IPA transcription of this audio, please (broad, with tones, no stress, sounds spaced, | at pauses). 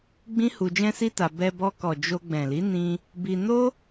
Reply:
ɡ͡b ĩ˦ h u˧ d͡ʒ ɛ̃˦ s i˦ t a˧ b ɛ˧ b ɔ˧ k ɔ˨ d͡ʒ o˧ ɡ͡b ɛ̃˨ l i˨˦ n ĩ˧ | b i˧ n o˦